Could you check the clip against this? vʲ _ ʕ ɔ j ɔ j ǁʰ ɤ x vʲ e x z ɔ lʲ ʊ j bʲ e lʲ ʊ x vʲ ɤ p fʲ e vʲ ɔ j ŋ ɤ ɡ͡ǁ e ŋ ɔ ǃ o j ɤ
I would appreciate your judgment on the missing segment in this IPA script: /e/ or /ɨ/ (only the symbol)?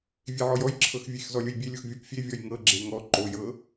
e